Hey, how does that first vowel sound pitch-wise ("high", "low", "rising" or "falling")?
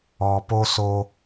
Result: low